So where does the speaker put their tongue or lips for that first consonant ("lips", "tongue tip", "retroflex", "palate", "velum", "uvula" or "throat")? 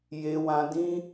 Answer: palate